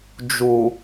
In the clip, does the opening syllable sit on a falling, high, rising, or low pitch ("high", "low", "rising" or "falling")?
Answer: low